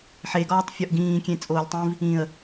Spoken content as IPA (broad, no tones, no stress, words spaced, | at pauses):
ħeɡɒːtˤfʲɒʔ ɡĩːkʲẽt͡sʼoːlʲtˤĩv | ĩə̯